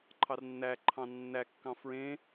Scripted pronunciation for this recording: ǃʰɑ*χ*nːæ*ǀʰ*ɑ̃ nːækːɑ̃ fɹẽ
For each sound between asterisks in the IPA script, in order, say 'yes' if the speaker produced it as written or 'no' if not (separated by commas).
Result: no, no